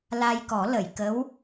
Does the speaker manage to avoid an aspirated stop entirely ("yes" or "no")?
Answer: yes